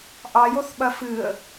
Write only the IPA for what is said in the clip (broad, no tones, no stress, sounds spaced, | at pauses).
ʔ ɑ j o θ ɓ ɐ f ɨ ə̯